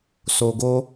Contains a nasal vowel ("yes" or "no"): no